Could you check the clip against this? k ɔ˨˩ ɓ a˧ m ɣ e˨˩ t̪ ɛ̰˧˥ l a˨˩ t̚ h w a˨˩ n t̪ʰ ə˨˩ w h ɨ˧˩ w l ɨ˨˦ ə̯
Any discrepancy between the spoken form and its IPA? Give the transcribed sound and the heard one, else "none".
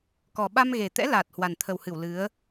none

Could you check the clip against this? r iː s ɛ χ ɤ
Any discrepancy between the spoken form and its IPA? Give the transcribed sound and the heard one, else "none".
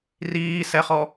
ɤ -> ɔ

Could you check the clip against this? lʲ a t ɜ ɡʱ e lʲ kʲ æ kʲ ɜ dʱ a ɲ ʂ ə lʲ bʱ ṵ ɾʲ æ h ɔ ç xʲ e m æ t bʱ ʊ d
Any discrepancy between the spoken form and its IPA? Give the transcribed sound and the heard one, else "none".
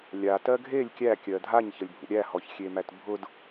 ʂ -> ç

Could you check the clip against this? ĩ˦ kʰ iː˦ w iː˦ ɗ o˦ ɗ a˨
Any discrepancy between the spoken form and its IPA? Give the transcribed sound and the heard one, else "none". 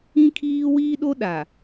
none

